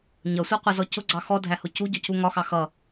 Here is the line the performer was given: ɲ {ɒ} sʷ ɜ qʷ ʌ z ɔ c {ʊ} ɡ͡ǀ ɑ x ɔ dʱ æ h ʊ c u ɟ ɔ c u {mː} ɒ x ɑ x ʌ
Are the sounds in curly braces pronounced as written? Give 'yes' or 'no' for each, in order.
no, yes, no

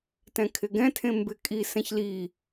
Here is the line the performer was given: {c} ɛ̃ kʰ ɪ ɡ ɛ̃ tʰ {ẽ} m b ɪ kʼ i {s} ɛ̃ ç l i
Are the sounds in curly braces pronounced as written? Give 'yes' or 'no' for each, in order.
no, yes, yes

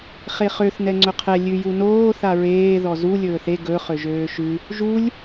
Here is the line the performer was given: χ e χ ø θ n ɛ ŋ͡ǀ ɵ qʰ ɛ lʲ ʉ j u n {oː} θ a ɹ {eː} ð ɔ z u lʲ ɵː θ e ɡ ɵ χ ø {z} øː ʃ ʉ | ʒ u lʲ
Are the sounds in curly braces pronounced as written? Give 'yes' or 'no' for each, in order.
yes, yes, no

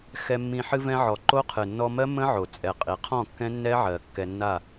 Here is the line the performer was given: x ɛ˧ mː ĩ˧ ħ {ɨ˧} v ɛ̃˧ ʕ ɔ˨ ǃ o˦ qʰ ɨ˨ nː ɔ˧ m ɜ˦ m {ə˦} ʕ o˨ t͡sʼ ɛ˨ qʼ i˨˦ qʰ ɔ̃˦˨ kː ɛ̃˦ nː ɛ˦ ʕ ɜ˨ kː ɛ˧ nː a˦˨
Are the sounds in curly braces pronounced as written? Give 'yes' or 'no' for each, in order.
yes, no

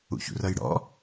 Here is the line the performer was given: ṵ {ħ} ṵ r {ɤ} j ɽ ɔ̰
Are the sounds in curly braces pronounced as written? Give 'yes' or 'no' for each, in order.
no, yes

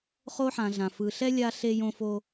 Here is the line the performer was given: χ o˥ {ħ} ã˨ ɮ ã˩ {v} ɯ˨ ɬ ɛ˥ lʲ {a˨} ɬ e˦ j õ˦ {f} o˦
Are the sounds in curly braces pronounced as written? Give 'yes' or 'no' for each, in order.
yes, no, no, yes

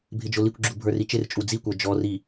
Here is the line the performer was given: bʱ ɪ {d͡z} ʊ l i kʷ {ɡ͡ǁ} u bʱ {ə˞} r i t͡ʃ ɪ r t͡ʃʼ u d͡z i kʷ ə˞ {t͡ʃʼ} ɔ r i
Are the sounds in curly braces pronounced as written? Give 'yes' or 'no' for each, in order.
no, yes, yes, no

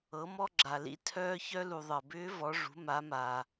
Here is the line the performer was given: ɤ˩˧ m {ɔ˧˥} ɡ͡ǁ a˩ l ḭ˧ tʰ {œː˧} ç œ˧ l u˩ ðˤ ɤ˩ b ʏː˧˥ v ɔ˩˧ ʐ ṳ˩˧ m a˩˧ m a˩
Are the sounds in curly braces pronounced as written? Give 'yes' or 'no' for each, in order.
no, yes

